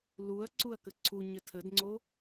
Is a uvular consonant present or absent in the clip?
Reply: absent